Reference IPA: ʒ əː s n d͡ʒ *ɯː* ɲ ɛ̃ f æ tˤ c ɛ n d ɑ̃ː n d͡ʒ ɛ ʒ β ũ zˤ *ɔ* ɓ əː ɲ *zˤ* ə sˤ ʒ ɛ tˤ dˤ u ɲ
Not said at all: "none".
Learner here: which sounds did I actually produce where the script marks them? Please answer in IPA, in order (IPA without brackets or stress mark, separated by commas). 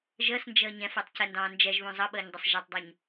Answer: əː, ʌ, dˤ